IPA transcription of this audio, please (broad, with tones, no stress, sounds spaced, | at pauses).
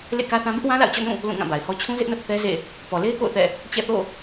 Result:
l ḛ˦˨ k ä˦ θ ã˦ b ɪ˦ ʔ w ã˦ l a̰˦˨ ʊ̯ t͡ɕ ɔ̰˦˨ n ũ˦˨ | l ũ˦˨ ŋ ã˦˨ b a˨ ɪ̯ h ɔ˦ t͡ɕʰ ũ˦ z ɪ˦ ʔ n ʊ˦ ʔ θ ɛ˦ z ḛ˦˨ | p ɔ˨ l e˦ ɪ̯ k o̰˦˨ ʊ̯ θ ɛ̰˦˨ | t͡ɕ ɛ̰˦˨ θ o̰˦˨